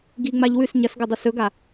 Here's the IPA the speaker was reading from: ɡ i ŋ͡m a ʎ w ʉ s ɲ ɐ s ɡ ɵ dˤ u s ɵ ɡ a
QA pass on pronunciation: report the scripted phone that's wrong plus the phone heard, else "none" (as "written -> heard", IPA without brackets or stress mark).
none